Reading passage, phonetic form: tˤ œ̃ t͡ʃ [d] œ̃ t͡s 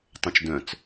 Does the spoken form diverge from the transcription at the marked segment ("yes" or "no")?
no